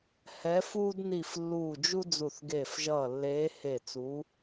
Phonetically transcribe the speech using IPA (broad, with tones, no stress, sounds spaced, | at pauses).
h ɛ˨˦ f uː˦ d n i˧˩ f lː uː˧˩ d͡ʒ u˦ d͡z u˧˩ θ ɡ eː˧˩ f ʒ ʌː˧˩ lː eː˨˦ h e˧˩ t͡s uː˨˦